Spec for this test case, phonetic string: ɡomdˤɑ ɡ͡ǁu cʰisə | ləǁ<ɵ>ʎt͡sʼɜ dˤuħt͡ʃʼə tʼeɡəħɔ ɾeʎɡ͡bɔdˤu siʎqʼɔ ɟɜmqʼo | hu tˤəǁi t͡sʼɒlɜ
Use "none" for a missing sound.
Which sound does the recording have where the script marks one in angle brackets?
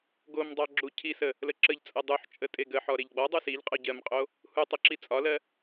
ə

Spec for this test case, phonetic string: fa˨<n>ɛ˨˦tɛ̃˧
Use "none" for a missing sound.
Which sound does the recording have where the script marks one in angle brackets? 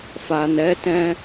n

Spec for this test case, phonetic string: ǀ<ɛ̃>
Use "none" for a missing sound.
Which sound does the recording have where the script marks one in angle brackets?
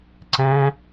ɛ̃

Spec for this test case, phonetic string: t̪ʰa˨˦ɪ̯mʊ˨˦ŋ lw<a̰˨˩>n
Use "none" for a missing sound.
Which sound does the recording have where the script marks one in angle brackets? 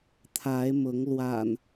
a̰˨˩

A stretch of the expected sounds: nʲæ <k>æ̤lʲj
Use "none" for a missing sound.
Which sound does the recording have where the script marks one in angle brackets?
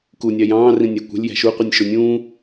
kʷ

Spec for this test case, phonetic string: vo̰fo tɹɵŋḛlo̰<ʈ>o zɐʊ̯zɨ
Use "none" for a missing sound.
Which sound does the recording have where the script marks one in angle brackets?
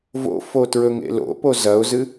p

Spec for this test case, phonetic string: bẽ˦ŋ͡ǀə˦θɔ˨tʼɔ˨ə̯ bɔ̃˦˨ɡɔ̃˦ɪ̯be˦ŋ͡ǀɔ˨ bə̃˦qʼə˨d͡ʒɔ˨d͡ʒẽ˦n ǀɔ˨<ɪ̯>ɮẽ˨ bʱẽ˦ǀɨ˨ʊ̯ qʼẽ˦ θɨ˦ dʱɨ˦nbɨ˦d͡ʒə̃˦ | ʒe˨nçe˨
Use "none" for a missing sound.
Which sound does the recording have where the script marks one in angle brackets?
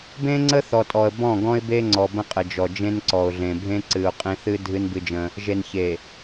ʊ̯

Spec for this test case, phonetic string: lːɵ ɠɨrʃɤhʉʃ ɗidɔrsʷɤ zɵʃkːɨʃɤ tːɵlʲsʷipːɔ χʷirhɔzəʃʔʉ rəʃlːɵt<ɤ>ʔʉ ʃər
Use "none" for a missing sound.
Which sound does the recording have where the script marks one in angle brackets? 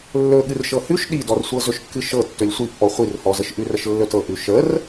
ɤ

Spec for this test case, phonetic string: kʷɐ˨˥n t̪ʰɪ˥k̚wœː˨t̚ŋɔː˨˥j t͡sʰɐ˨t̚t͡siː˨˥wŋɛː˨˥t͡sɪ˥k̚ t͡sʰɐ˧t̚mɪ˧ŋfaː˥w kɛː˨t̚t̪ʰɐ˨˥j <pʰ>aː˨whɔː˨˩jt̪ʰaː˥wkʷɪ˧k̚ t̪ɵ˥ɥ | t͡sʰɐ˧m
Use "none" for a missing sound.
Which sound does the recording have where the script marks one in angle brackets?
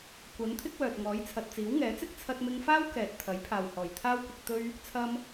pʰ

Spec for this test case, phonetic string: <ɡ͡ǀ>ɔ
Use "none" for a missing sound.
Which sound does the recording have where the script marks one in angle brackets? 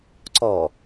ǀ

